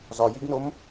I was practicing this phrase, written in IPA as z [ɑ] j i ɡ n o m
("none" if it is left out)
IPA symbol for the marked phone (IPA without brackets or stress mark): ɒ